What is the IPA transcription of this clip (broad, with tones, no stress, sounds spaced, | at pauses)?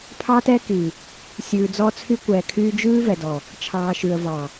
pʰ ɑ˦ t ɛ˦ k i˨ | sʲ ʉː˨ d͡z ɔ˦ t͡sʰ y˦ kʷ ɛː˨ kʰ yː˦ d͡ʒ ʉː˦ v ɛ˨ d ɔ˨ | t͡ʃʰ ɑː˨ ʃ ʉ˨ ə̯ v ɑ˨